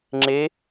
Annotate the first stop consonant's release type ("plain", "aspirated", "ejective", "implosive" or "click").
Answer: click